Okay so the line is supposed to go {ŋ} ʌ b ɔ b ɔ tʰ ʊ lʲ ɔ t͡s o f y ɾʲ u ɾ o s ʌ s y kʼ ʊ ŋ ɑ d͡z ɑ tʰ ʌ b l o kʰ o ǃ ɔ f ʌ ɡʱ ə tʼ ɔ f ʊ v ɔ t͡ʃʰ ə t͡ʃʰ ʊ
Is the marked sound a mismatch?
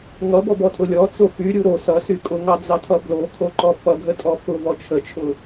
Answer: no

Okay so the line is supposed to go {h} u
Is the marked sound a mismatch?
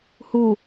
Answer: no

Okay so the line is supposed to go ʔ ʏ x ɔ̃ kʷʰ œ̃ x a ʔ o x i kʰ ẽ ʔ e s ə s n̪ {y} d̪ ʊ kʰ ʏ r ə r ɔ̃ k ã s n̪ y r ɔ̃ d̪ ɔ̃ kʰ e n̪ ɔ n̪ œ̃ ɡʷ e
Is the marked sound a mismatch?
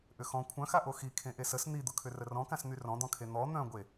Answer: yes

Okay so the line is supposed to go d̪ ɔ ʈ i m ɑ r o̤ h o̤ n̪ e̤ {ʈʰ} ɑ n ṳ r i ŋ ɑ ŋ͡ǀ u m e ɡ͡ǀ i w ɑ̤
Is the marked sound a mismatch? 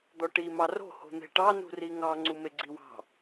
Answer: yes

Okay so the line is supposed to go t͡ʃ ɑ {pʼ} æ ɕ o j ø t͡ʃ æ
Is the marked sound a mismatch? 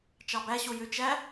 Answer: yes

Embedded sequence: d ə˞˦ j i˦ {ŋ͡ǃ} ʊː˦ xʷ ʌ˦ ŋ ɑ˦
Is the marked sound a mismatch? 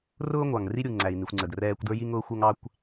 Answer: yes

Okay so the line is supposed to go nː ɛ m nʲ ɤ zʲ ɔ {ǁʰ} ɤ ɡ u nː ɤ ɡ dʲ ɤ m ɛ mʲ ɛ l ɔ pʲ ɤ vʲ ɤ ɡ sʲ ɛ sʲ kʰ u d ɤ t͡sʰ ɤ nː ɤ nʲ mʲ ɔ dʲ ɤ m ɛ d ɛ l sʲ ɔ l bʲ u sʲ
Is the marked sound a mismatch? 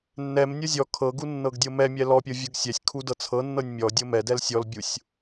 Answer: yes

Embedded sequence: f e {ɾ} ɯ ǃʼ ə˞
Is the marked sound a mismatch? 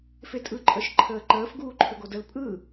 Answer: yes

